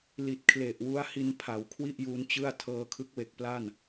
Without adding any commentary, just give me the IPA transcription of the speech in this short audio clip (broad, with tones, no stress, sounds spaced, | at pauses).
l i˨˩ t̚ kʰ l e˨˩ ʔ w u˦˥ a̯ h i˧ n pʰ a˩˦ w kʰ w i˥˩ ʔ j u˦˥ n t͡ɕ ɯ˥˩ a̯ tʰ ɤː˧ kʰ ɯ˦˥ k̚ w e˨˩ k̚ p l a˥˩ n